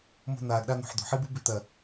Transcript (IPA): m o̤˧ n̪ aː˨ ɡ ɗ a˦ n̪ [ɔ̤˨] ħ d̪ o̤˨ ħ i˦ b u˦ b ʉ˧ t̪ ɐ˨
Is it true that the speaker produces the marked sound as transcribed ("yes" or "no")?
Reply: no